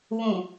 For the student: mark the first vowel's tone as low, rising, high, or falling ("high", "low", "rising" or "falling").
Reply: low